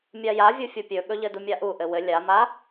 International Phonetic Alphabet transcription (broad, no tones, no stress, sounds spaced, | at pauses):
mʲ a j a vʲ u fʲ o pʲ ɵ ɠ ɵ ʎ ɘ d u mʲ a ʔ u ʔ ɘ w ɘ lʲ a m a